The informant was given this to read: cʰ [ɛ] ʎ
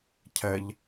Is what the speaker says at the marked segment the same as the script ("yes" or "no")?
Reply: yes